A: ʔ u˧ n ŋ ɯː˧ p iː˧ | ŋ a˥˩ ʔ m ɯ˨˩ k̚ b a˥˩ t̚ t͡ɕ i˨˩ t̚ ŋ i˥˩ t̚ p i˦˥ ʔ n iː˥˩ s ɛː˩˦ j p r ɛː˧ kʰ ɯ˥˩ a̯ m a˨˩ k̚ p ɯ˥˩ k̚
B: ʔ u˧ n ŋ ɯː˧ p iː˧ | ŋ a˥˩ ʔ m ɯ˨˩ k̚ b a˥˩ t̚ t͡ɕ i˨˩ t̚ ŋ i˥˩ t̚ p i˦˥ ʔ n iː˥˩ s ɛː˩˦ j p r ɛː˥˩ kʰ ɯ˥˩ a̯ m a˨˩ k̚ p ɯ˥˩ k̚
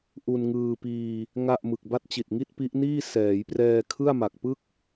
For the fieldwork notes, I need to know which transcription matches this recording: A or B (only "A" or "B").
A